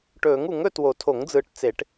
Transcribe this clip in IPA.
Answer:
ʈɵː˨˩˦ŋu˨˩˦ŋɵ˦˨ two˨˩˦tʰo˨˩˦ŋd͡zɯː˨ʈ t͡se˨˩˦ʈ

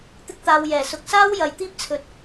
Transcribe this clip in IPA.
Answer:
t̪ɪ˥k̚t̪aː˧wjɛː˨˩ sʊ˨k̚saː˥w jɐ˨jt̪iː˥p̚t͡sʰɵ˨t̚

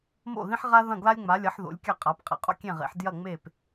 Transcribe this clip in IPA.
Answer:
mo̰˥˩ðĩ˥ħʁa˥ðɐ̃˥˩ ɡla˥lʲŋ͡ma˩˥lʲɐ˩˥ħ ðo̰˩˥lʲkʲa˥˩qʼa˩˥p qʼḛ˩ qʼo̰˥kʲẽ˥˩ʁḛ˩˥ħ djɐ˥˩ŋ͡me˥˩p

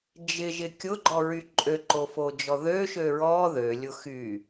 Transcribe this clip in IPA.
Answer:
d͡ʒɪʒɪ kʲʊɡ͡ǃɔɹy ǃʼøǃofod͡ʒɔ ðøʃø ɹɔ ðølʲʊ xy

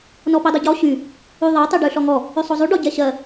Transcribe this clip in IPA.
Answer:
nɔpidˤɪɟɔ ɕy | yðˤɜ tˤyɖʉɬɔŋɔ | ʉsˤozˤʉ ɖɔɟɛɕɜ

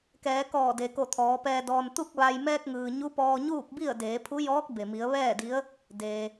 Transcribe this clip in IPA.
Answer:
kɛː˩˧kɔː˧˩de˩ko˧˩ t̪ʰɔː˩˧pɛː˧ dɔː˧n t̪u˥˨k̚ʋa˧j mɛː˧k̚ŋɯː˩ ɲu˧˥pɔː˧ɲuː˥˨k̚bi˥˨ə̯ deː˩˧pʰu˧˥jɔː˧˥k̚ be˩mi˩˧ə̯ ʋɛː˥˨di˧˥ə̯ | deː˩

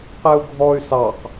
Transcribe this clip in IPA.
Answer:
qɛu̯ɡʱɔy̯ sɑq

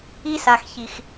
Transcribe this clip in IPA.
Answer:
i˦sa˨xçi˨x

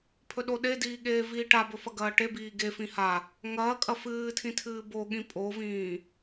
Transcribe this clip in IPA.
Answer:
pʰɵɗoɗediː ɠeːviːʈabɵ fɐɡɐːʈebiː ɡefĩ ha | ŋɐːkʼɐ fɨːtʰĩ tʰɨːboɠĩ pʼovĩː

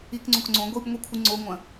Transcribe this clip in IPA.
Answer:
ikŋ͡ǀõk ŋ͡ǀõ ɡʷib ŋʷikʷʰɨŋ͡ǀoŋʷɐ̃

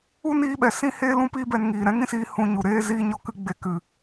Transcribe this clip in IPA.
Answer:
u˦niː˧ɓɛ˨ sĩ˦heː˦ lũ˦piː˦bɛ˧n ŋiː˨ ɾɛ̃˦ŋĩ˦siː˧ hũ˧ ɲu˨ɾeː˦ziː˦ ɲɔ˧kɨ˧ ɡ͡be˧kɨ˨

